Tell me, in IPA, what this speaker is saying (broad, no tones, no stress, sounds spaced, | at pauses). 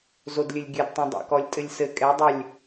z o d lʲ ɘ lʲ ɡʲ ɘ d tˤ ɛ̃ dˤ a̰ k ɔ lʲ tʼ ɘ lʲ s ɘ kʼ ɛ dˤ ɘ lʲ